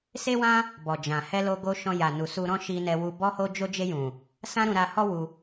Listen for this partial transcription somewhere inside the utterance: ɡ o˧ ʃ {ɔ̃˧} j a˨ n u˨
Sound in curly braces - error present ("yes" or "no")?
no